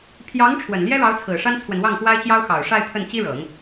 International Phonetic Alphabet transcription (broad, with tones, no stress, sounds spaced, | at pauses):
pʰ j ɑ˧˥ ŋ ʈ͡ʂʰ w ə˨˩ n l j ɛ˥ ɻ ɑ˧˥ ʊ̯ t͡sʰ ɹ̩˨˩ ʂ a˥ n t͡sʰ w ə˨ n w ɑ˥˩ ŋ x w a˥ ɪ̯ t͡ɕ j ɑ˥ ʊ̯ x ɑ˨˩ ʊ̯ ʂ a˥˧ ɪ̯ pʰ ə˥˩ n t͡ɕ i˥ ɻ ɤ˨˩˦ ŋ